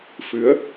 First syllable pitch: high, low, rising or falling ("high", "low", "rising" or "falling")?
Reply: rising